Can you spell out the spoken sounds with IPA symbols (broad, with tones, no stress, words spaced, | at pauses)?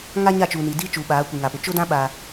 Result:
ŋa˦ɲa˦˨t͡ʃuː˨ni˨ diː˦ t͡ʃuː˨ɓaː˨˦kʷi˨ ŋa˨pʊ˨ t͡ʃʊ˦dã˦ ɓa˦